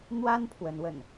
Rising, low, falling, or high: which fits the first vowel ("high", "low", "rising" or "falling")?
high